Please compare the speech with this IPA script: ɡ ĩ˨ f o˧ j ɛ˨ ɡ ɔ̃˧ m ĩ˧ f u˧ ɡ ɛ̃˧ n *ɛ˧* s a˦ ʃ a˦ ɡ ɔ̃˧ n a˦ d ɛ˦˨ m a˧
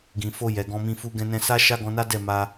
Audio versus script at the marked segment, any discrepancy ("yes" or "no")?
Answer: yes